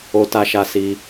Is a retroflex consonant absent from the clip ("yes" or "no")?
yes